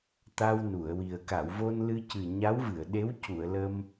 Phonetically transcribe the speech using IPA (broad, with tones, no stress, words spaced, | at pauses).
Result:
t̪a˧w nu˨˩˨ə̯wi˨˩ə̯ ka˨˩˨wvo˧nlɨ˧cɨ˨˩ ɲa˧˥w vɨ˨˩˨ə̯ɗe˧˥w cu˨˩˨ə̯lə˧m